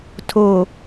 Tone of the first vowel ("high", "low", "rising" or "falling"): low